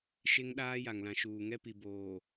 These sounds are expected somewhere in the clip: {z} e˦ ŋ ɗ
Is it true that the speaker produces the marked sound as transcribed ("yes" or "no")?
no